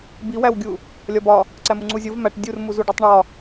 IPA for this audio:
b i w æ w ɡʲ u | lʲ ɒ b ɒ | ǀ æ m u ŋ͡ǀ u zʲ o v m æ ʈ dʲ u r m u z u ɖ u tˤ ɳ ɒ

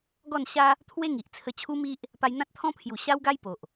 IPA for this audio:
ɡ ɔ˥˧ n ɕ a˦ | t̪ʰ w e˦ ŋ i˨ ʔ t͡sʰ ə˧ t͡ɕʰ u˦ m i˦ ʔ | p a˧ j n̪ ã˦ t̚ t̪ʰ ɔ̃˦ pʰ j u˨˩ ɕ a˦ w ɡ a˦ j p o˨ ʔ

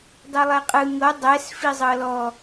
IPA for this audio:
dˤ ɯ lˠ ɛ qʼ ɯ ŋ ɤ dˤ ɛ s f i zˤ ɤ l ɔ

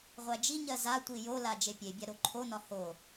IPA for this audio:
ʁʷ æ d͡ʒ i ɲ ɜ z a tʷ i j o l a d͡ʒ e pʲ e bʲ a ɾ o ǃʰ o n ɒ h o

